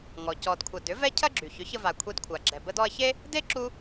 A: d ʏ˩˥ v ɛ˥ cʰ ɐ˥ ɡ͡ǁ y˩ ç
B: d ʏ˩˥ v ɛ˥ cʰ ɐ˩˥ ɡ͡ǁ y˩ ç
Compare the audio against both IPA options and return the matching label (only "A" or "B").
A